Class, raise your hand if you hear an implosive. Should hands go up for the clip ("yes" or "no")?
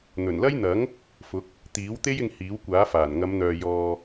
no